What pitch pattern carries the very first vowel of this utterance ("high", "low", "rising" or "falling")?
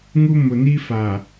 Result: high